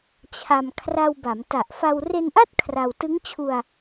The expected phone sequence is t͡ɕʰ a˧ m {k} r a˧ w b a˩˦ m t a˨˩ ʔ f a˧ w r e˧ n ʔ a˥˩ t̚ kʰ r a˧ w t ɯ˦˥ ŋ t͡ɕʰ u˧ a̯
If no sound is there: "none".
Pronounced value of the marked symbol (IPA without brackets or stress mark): kʰ